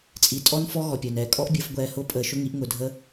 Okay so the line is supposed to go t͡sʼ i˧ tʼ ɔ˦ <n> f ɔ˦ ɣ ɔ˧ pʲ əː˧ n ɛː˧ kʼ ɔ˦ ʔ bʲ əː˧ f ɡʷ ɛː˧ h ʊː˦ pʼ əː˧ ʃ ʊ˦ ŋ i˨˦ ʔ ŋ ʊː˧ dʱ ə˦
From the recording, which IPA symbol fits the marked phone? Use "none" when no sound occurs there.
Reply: n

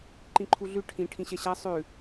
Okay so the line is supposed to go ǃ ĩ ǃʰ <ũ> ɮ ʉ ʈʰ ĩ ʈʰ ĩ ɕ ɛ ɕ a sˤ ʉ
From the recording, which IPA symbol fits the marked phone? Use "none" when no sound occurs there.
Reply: u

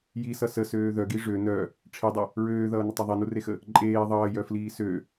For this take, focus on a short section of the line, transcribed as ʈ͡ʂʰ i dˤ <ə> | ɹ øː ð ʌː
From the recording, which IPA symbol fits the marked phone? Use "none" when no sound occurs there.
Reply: ə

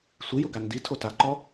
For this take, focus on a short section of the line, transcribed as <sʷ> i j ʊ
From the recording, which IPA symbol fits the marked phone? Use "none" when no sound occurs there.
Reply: sʷ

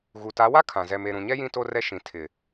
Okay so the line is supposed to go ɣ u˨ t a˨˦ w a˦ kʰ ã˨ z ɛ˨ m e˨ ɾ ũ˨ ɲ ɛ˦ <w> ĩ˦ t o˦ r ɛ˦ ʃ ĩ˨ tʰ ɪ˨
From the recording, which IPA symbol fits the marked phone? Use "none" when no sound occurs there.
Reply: j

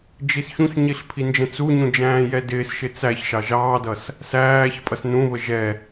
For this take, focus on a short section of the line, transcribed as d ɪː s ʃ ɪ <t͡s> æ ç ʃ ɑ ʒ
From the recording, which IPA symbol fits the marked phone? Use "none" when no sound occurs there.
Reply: t͡s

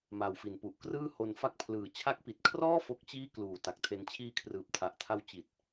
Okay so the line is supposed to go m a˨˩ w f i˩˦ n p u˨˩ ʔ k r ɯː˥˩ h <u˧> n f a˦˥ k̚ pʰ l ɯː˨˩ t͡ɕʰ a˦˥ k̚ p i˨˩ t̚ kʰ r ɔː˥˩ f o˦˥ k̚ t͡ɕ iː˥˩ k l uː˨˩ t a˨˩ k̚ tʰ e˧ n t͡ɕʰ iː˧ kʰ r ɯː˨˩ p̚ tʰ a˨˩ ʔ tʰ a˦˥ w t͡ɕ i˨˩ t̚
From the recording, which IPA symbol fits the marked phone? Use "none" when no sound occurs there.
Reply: o˧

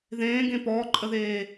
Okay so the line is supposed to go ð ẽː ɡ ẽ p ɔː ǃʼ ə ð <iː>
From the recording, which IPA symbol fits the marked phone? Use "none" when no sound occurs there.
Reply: eː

